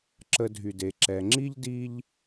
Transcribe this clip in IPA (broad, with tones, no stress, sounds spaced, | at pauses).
ǁ ə˧ dʱ y˨ d e˨ ǁ ɛ˨ ŋ͡ǁ i˦ ʎ d i˧ ʎ